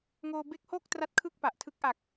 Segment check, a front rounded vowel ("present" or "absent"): absent